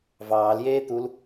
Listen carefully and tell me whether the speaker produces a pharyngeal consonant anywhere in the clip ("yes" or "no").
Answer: no